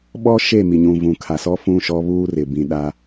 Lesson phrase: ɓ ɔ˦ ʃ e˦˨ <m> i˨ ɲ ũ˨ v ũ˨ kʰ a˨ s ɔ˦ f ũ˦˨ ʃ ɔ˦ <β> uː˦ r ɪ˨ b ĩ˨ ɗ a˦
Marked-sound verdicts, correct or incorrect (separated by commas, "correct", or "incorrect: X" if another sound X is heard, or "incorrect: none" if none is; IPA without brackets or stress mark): correct, correct